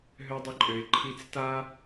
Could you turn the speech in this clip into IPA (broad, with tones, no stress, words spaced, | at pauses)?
ɦø˦dˤə˦ǃʼø˧ɪ̯ ǃʰi˦t͡s ta˦